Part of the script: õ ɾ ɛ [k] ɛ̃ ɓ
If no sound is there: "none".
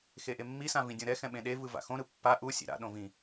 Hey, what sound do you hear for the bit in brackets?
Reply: x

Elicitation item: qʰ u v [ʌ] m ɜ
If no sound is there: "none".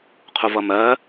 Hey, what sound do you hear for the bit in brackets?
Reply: ʌ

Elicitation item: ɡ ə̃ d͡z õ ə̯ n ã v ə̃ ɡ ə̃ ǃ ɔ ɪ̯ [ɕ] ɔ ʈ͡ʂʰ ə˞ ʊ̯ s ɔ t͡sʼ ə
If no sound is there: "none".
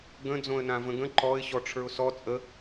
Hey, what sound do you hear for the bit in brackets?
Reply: ɕ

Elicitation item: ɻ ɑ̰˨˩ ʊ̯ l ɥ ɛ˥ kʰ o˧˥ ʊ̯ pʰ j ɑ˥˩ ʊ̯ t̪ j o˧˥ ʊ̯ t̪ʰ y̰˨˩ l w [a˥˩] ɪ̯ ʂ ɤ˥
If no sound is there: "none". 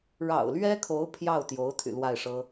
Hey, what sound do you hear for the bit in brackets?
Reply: a˥˩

